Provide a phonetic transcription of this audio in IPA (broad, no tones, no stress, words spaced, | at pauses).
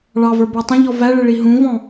ɭɑvə˞ bə˞tˤə̃ʎɔ væɭɪ ɭiɦũvɔ̃